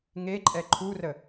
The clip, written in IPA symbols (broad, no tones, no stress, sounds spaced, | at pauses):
ŋ e ǃʼ ɛ ǃʰ u r ə